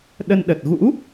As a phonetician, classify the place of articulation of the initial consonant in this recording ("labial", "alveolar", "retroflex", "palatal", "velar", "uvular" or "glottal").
alveolar